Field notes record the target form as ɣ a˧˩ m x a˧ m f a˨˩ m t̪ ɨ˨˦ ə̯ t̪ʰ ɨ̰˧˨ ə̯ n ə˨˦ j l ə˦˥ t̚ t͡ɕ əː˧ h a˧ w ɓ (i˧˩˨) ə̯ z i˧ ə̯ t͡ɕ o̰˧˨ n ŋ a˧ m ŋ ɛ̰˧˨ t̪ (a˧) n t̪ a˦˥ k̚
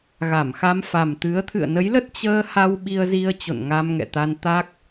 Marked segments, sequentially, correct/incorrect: incorrect: i˧, correct

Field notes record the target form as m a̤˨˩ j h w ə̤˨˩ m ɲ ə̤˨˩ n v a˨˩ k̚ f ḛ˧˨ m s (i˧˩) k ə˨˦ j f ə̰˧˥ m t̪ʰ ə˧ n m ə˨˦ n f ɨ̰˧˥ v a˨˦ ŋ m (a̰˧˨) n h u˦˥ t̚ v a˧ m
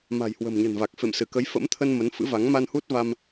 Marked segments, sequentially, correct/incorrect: incorrect: ɨ˧˩, incorrect: a˧

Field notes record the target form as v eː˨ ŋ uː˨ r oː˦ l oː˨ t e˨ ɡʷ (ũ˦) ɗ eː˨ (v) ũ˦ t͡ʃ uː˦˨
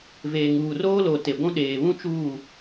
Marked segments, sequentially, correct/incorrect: correct, incorrect: β

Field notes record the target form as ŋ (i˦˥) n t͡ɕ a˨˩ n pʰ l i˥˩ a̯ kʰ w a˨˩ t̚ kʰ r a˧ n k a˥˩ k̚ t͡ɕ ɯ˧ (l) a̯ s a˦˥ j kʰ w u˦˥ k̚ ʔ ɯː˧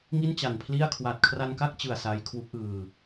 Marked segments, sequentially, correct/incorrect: incorrect: i˥˩, incorrect: none

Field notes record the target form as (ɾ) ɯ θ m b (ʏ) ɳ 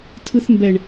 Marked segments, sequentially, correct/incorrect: incorrect: tʰ, incorrect: ɛ

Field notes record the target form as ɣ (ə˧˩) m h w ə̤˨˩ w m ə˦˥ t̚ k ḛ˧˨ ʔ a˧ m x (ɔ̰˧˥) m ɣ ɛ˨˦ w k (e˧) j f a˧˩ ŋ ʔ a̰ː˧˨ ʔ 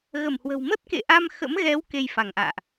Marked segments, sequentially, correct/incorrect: correct, incorrect: ə̰˧˥, correct

